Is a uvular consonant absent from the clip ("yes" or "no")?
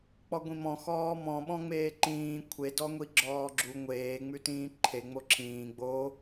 yes